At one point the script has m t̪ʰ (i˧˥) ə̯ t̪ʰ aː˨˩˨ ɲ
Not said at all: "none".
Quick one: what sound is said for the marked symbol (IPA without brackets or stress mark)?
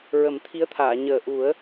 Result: i˧˥